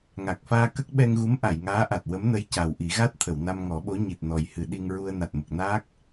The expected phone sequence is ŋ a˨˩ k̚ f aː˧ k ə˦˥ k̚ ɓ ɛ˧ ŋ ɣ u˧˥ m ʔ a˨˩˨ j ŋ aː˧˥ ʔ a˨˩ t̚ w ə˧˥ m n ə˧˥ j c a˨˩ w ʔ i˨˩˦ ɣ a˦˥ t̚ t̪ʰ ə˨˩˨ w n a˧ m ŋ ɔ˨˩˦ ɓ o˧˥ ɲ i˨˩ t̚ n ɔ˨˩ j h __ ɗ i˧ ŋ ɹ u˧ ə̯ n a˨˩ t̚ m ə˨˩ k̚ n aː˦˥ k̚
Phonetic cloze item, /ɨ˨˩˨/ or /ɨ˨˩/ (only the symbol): ɨ˨˩˨